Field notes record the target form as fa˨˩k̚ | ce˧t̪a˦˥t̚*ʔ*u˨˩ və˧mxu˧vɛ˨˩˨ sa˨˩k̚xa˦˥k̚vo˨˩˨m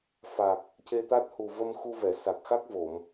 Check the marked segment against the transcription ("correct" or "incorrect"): incorrect